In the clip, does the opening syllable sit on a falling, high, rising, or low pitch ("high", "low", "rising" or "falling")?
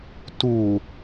low